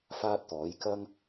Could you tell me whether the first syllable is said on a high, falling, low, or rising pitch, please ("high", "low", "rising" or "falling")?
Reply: high